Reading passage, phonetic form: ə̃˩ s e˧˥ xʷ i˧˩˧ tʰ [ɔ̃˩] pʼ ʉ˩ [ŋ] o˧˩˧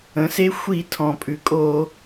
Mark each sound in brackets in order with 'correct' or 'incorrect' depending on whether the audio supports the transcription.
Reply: correct, incorrect: kʼ

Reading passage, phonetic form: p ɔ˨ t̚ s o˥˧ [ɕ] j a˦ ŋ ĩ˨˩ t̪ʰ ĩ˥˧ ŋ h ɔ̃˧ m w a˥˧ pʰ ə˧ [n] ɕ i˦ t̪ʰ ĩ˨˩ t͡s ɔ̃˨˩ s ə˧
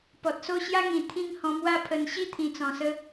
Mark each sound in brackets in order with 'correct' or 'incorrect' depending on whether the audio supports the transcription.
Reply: correct, correct

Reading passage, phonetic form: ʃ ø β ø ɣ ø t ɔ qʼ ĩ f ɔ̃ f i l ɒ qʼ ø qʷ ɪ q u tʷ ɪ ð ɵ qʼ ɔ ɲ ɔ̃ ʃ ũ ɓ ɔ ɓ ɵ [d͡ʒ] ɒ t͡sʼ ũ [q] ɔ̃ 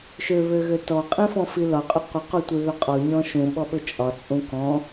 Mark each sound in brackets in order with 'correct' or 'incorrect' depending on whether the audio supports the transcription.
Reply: incorrect: t͡ʃʼ, incorrect: k

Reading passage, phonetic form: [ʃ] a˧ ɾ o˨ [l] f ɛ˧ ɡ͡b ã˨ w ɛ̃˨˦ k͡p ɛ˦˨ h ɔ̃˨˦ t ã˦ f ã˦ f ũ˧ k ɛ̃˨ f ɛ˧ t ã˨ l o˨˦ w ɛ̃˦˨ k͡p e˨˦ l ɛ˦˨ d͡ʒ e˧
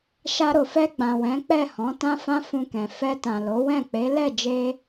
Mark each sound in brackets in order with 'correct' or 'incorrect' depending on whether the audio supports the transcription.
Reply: correct, incorrect: none

